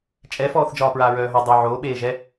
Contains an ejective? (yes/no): yes